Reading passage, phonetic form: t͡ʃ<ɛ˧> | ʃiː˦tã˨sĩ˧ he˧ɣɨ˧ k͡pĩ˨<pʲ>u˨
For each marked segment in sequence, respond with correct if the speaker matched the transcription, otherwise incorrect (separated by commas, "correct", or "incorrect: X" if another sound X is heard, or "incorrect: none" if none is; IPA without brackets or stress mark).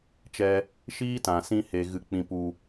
correct, incorrect: p